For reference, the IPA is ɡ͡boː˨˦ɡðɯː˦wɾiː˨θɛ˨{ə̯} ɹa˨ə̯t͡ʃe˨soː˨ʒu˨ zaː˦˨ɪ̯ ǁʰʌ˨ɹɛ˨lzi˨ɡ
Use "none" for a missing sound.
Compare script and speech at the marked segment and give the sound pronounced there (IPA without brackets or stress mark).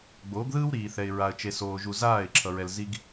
ɪ̯